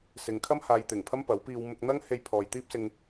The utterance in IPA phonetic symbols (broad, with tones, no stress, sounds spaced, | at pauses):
s ɪ˨ ŋ kʰ ɐ˥ m h aː˧ j t̪ ɪ˨˩ ŋ pʰ ɐ˥ m p ɐ˨˥ w p iː˧ w m ʊ˧ k̚ n̪ ɐ˥ ŋ h e˧ j pʰ ɔː˨ j t̪ iː˥ p̚ s ɪ˧ ŋ